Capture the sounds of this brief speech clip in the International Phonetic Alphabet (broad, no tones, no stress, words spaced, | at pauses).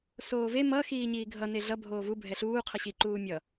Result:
soːve mʌ xiːɲiːɡʱʌ neɮʌ bʱoːvu bʱɛɬuː qʰʌɕiǃuː mʲʌ